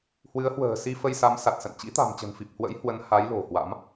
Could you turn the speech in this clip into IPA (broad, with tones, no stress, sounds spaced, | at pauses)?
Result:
h w ɨ˨˦ ə̯ h w ə̤ː˨˩ s i˧ f ə˧ j s a˨˦ m s a˨˩ t̚ s ə̰˧˨ n t͡ɕ ḭ˧˥ t̪ a̤˨˩ m t͡ɕ ə̤˨˩ n f i˨˩ p̚ h w ə̰˧˥ j h w ə˨˦ n h a˨˦ j l o̤˨˩ h w a̰˧˥ m